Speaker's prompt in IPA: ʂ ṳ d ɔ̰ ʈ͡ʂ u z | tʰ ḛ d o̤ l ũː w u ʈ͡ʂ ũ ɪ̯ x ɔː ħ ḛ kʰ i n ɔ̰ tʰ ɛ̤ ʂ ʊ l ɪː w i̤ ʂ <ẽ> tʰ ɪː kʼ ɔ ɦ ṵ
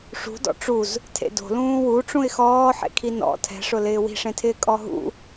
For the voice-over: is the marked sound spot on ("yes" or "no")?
yes